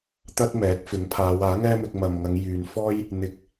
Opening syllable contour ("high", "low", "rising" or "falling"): high